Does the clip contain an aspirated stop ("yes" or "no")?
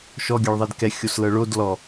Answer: no